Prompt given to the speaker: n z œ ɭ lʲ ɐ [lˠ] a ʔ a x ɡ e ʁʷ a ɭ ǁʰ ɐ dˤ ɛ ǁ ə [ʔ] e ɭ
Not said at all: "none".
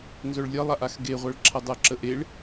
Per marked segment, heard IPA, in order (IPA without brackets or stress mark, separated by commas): lˠ, ʔ